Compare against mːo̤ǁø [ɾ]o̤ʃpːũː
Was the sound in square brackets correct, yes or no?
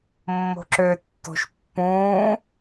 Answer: no